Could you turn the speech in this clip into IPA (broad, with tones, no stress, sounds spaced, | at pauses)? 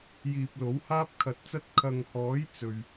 j iː˨ p̚ l o˨˥ w h aː˥ p̚ kʰ ɐ˨ t̚ t͡s ɐ˥ t̚ kʰ ɐ˨ ŋ h ɔː˨˥ j t͡s ɵ˨ ɥ